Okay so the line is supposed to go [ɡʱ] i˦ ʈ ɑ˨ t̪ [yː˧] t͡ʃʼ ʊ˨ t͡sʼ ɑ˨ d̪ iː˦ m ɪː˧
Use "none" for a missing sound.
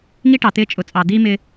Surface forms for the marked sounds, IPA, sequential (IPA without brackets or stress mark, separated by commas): ŋ, ɪː˧